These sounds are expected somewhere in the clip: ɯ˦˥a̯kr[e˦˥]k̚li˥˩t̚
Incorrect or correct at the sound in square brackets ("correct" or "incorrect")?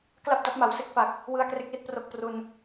correct